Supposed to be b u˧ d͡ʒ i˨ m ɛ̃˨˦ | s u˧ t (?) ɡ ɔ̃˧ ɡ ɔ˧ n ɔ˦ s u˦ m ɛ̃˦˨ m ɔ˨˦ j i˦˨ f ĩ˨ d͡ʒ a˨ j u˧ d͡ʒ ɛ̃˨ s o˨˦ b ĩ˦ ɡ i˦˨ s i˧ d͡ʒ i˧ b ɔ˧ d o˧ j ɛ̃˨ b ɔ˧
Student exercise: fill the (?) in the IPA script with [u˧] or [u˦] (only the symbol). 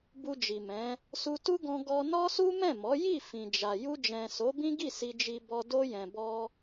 u˦